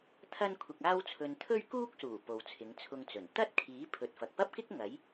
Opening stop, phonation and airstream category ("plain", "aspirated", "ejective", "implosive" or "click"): aspirated